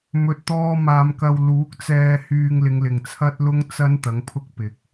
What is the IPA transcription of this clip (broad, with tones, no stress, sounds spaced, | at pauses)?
m ɵ˨ t̚ t̪ ɔː˧ m aː˧ m k ɐ˧ w l uː˨˥ k̚ t͡s ɛː˧ h yː˧ ŋ l ɪ˨˧ ŋ l ɪ˨ ŋ t͡sʰ ɐ˥ t̚ l ʊ˥ ŋ t͡s ɐ˥ n t̪ ɐ˨˥ ŋ pʰ ʊ˥ k̚ p ɪ˨ k̚